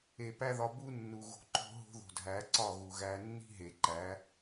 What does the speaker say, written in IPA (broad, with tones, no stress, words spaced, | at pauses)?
e˨pæ˦ðɒ˧ bu˦nːu˨ ɣo̤˧ǃo̤˦ ɦo̤˦ðo̤˨dʱæ˨˦ ǀɒ˦˨ɣu˨ɣæ˧ nːi̤˦ɦe˨ǃæ˨˦